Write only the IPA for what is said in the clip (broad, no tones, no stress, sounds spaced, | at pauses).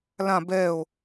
l ã b ɛ o̯